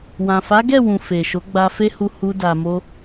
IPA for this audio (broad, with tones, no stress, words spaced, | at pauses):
wã˨fa˨˦ɡɛ˦˨ wũ˨ fe˨ʃo˨˦ ɡ͡ba˧fe˦hu˧ hu˦da˧mo˦